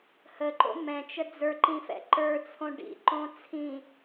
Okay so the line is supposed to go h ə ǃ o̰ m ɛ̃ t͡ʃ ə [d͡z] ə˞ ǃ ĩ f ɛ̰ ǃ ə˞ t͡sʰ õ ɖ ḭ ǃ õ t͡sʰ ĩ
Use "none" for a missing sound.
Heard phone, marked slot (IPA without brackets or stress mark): d͡z